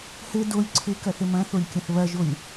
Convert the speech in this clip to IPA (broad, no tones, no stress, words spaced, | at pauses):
hɘ dolʲ ǀʰɘkɐθɘ mɐ̃θolʲkʲɐ̃θ βɐʒolʲ